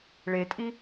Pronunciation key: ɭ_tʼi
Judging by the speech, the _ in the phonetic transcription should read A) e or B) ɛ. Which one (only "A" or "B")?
A